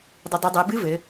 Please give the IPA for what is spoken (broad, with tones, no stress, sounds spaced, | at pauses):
dˤ ɨ˩˧ dˤ ɨ˩˧ dˤ e˩˧ b ɨ˧˥ v ɘ˩˧